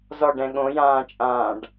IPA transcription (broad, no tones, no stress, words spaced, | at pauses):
zɔɖɛ̃ ɠõjãːt͡ʃʼãːɖ